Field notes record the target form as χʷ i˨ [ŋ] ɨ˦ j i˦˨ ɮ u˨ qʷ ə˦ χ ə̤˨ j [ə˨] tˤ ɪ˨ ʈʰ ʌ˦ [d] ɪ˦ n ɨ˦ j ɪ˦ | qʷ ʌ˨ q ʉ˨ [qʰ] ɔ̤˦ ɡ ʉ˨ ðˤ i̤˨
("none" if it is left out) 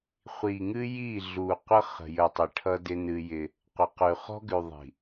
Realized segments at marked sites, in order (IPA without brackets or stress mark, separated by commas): ŋ, ə˨, d, χ